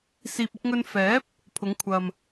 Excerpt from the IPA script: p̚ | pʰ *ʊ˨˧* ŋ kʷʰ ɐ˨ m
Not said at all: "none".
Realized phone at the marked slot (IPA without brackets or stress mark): ʊ˨˧